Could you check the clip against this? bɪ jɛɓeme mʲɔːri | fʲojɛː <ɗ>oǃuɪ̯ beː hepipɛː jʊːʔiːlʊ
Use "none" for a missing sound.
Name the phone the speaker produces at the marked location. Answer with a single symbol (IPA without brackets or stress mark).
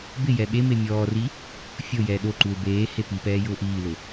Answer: ɗ